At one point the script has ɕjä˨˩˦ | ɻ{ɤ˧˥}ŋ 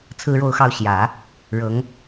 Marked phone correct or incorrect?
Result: correct